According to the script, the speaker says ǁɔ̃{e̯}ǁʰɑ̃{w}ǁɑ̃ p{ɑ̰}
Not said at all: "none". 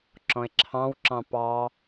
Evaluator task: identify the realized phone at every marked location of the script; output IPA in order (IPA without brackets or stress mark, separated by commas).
e̯, w, ɑ